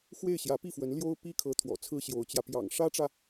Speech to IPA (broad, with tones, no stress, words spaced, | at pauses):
xwe˥˩ɪ̯ ɕjä˧˥pi˥˩fwə˧˥n ljo˥ʊ̯ pi˥kʰɤ˧˥ t̪ʰwɔ̰˨˩t͡sʰɹ̩˥ ɕjo˧˥ʊ̯t͡ɕjä˧ pjɑ̰˨˩ŋ ʂä˥ʈ͡ʂä˨